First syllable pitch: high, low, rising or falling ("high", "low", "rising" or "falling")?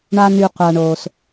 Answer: high